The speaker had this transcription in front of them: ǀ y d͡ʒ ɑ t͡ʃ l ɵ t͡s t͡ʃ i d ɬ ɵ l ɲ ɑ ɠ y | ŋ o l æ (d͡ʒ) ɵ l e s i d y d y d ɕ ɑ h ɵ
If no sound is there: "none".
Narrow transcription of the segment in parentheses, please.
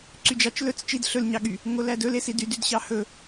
d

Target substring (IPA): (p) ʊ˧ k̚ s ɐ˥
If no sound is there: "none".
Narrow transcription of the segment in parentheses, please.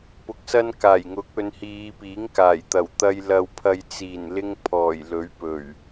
p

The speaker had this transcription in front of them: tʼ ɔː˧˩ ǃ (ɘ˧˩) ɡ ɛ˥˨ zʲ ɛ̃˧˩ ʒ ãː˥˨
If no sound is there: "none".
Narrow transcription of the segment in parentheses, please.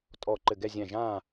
ɘ˧˩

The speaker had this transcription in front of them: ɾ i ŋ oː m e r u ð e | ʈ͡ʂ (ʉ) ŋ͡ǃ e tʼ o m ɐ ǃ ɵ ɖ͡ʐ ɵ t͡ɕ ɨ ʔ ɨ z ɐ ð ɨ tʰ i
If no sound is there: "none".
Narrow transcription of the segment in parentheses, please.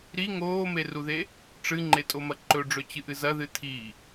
ɨ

